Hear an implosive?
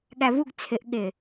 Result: yes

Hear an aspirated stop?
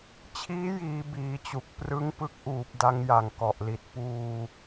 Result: yes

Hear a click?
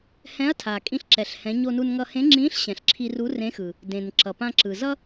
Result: yes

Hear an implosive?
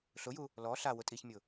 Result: no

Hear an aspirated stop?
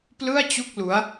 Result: no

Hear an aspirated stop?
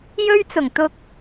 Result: no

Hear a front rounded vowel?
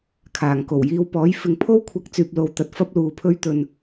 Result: yes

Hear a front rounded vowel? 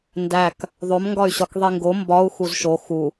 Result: yes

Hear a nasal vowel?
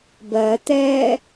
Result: no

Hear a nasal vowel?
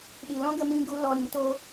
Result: yes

